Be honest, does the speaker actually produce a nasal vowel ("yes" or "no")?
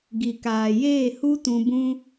yes